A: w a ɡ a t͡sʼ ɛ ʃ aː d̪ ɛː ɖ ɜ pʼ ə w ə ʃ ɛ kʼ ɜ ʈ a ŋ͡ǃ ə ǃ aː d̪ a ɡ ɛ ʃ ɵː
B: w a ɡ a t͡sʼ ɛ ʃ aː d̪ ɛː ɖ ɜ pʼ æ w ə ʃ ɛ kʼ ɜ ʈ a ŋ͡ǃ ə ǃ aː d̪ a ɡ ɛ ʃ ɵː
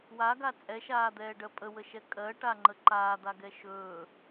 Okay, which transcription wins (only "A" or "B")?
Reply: A